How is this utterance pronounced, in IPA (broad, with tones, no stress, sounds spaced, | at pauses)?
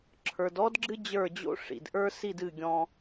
ǁʰ ə˞˨ d ɔ˦ d ɡ͡ǁ ɨ˦ d͡ʑ ə˞˦˨ d͡ʑ o̰˦ ʂ ḭ˨ d ʔ ə˞˦ s i˦˨ d ɨ˦˨ ɡʲ ɔ̃˦